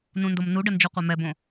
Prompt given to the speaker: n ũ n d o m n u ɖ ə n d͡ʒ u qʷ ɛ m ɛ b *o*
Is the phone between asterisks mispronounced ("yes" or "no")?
yes